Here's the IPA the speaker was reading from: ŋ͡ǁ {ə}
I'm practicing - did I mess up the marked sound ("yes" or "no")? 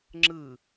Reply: yes